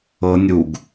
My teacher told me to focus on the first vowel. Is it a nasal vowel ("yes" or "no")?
no